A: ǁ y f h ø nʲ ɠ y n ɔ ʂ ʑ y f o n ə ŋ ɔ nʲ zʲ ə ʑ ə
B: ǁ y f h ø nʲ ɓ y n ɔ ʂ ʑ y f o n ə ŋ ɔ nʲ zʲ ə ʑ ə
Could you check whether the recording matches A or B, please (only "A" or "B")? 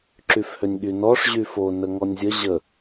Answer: A